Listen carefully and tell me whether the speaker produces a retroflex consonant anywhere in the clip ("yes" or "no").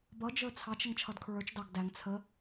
no